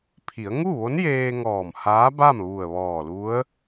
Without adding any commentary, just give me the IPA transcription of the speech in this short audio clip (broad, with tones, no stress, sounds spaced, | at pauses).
pʰ i˩˧ ə̯ ŋ u˥˨ ʋ o˧˥ n j eː˧ ŋ ɔː˧˩ m h aː˧˥ b a˥˨ m ʋ u˧˩ ə̯ ʋ ɔː˧˩ l u˧˥ ə̯